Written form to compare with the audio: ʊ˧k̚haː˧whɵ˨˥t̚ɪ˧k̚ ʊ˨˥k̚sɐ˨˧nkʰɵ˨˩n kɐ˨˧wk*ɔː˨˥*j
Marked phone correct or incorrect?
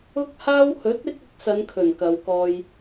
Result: incorrect